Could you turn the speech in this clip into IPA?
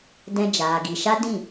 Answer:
d ɛ̃˧ d͡ʒ aː˨ ɡ i˨ ʃ a˦ d ĩ˦˨

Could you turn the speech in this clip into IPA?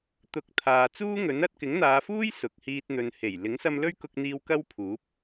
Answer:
t̪ ʊ˨˥ k̚ t̪ʰ aː˨ t͡s uː˥ ŋ ɵ˨˥ n ɐ˧ t̚ k ɪ˨˥ ŋ n̪ aː˨˧ f uː˥ j s ʊ˨ k̚ h iː˧ t̚ n̪ ɵ˨ n h e˨˩ j l ɪ˨˥ ŋ s ɐ˧ m l ɵ˥ ɥ k ʊ˧ k̚ n̪ iː˧ w k ɐ˥ w pʰ uː˨˥ p̚

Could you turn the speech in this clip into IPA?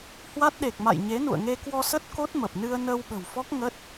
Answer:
h w a˦˥ t̚ ɗ e˨˩ k̚ m a̰˧˨ j ɲ e˨˦ n ṵ˧˨ ə̯ ŋ e˧ k w ɔ˧ s ə˦˥ t̚ k o˦˥ t̚ m ə˨˩ p̚ n ɨ˧ ə̯ n əː˧ w ɓ ə̤˨˩ w f ɔ˦˥ k̚ ŋ ə˦˥ t̚

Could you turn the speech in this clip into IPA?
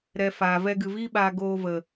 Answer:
ɾ ɛ˧ f aː˨ v ɛ˧ ɡ ɨ˨ v iː˦ ɓ aː˧ ɡ oː˧ v ə˨

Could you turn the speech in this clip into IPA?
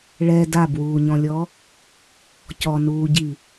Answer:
ɭ ɛ d a b w uː ɲ ɔ̃ lʲ ɔ | c ɔ n uː ɟ i

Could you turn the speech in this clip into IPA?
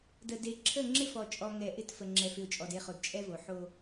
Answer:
d ə˨ d e˨ ǁʰ ə˦˨ ŋ͡ǁ ɪ˦ f ɔ˨ t͡ʃʼ ɔ˨ ŋ ɛ˨ ʔ ɪ˦ t f ə˨ ŋ͡ǁ ɛ˨ f ɪ˨ ʊ̯ t͡ʃʼ ɔ˨ d e˦˨ χ o˨ d t͡ʃʼ ɛ˦ v o˨ ħ o˦

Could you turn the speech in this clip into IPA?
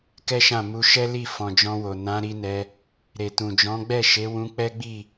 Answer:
k ɛ˦ ʃ ã˦˨ m u˧ ʃ ɛ˦ l i˦˨ f ɔ̃˨ d͡ʒ ɔ̃˧ w o˨ n ã˨˦ ɾ i˧ n ɛ˧ | ɾ e˨ t ũ˨ d͡ʒ ɔ̃˨˦ ɡ͡b ɛ˦˨ ʃ e˨˦ w ũ˧ k͡p ɛ˦ ɡ͡b i˦˨

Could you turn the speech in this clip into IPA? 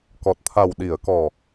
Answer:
k ɔ˨˩ t̚ t̪ʰ a˨˩ w ɗ i˨˩˨ ə̯ k ɔ˨˩

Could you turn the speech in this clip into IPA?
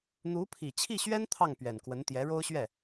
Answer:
n̪ u˧˥ pʰ i˨˩ t͡ɕʰ i˥˩ ɕ ɥ ɛ˥ n t̪ʰ ɑ˥˩ ŋ p ɥ ɛ˨˩ n k w ə˧˥ n t̪ j ɛ˧˥ ɻ o˥ ʊ̯ ɕ ɥ ɛ˥˩

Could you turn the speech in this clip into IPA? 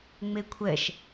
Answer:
ŋ͡m e kʷʰ ɛ ʃ

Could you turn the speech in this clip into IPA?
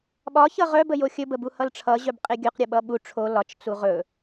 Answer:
ɓ ɒ ç ʌ ʁ œ b ə j o xʲ ɵ b ə b u h ʌ l ʈ͡ʂʰ ʌ ʑ œ b qʼ e ɡʲ œ q ɾʲ ʌ ɓ ʌ ɓ u ʈ͡ʂʰ o l ɒ t͡ʃ t͡s u ʁ ɵ

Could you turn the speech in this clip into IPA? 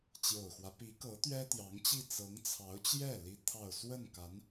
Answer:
t͡ɕ j o˨˩ ʊ̯ x w ä˦ p i˧˥ k ɤ˧˥ t̪ ɥ ɛ˥ t̪ j ɑ˧˥ ŋ t͡ɕ i˥˩ t͡s ɤ˧˥ ŋ t͡sʰ ɑ˧˥ ʊ̯ t͡ɕ j ɛ˥˩ l i˥ t̪ʰ ɑ˥˧ ʊ̯ s w ə˥˩ n k a˧˥ n

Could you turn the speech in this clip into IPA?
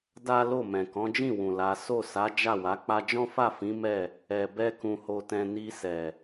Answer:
d a˦ l o˦˨ m ɛ̃˨ k ɔ̃˨˦ d͡ʒ ĩ˦˨ w ũ˨ l a˨˦ s o˦˨ s a˨˦ d͡ʒ a˦˨ w a˨˦ k͡p a˧ d͡ʒ ɔ̃˦ f a˦˨ f ĩ˨˦ m ɛ˦˨ | ɛ˨ b ɛ˧ k ũ˨ h o˨ t ɛ̃˨ n i˧ s ɛ˨

